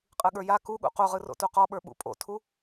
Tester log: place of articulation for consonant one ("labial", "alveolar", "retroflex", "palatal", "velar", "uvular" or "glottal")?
uvular